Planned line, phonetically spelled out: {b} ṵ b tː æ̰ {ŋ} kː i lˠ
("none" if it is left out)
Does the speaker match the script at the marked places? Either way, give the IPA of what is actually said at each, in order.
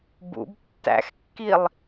b, x

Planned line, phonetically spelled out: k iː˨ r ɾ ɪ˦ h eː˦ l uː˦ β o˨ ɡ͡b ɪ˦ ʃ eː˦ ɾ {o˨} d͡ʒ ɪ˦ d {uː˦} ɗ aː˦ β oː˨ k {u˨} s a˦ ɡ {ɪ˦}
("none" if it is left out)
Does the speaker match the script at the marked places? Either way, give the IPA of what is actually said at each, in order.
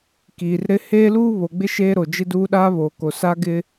o˨, uː˦, o˨, ɪ˦

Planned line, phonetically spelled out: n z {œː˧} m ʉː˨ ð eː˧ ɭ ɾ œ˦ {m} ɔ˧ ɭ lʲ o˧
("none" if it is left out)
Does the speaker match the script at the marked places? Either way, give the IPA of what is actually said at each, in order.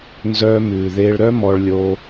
œː˧, m

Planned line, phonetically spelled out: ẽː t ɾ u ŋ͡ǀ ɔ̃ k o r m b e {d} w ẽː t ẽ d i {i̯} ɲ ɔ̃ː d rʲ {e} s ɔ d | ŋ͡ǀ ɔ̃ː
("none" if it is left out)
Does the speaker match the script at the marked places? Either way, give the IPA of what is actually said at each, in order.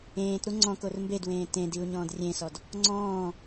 d, u̯, ẽ

